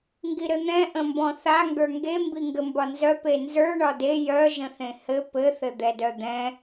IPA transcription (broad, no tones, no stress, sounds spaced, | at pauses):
ŋ ɡ i ɾ ɘ n̪ ɛ̃ ʔ ə̃ m b ɔ̃ θ a ŋ ɡ ə˞ ŋ ɡ e m b i ŋ ɡ ɘ m b ɒ n z œ p e n z ə˞ ɳ ɒ d e j œ ʒ ə̃ θ ẽ h ɘ p ɘ θ ɘ d̪ ɛ d œ d̪ ɛ̃